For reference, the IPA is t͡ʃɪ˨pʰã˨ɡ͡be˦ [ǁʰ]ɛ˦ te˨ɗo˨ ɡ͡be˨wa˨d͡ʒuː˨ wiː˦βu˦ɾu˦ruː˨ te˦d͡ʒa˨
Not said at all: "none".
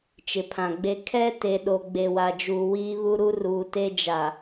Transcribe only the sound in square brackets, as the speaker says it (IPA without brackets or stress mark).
kʰ